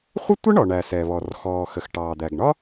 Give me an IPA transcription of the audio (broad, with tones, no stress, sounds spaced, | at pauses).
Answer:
χʷ ə˥ tʷ ə˥ ɳ ɔ˩ ɳ æ˩ s ɛ˩ β ɔ˩ r x ɔː˩ x ə˩ x ʈ ɑː˩ d̪ æ˩ ɡ ɳ ɒ˥